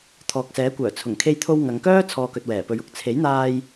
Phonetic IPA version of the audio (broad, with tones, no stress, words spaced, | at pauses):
t̪ʰɔː˨k̚sɛː˨˥kʷœː˨˩ t͡sʰʊ˨˩ŋkʰe˧jt̪ʰo˧w ŋɐ˨˧ŋkœː˥ t͡sʰɔː˧kɵ˨t̚wɛː˨˩ pɵ˨˧ɥʊ˨k̚ t͡sʰe˨˥jn̪aː˧j